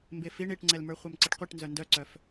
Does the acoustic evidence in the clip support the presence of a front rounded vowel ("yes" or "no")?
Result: yes